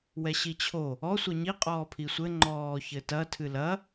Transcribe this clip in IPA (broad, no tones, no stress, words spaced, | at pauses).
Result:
wɛɕit͡ɕʰo | ɔ sʷɐɲi qʼɔːpʰisʷɘ ŋ͡ǃɔːçɘtɐ tʰɨlɐ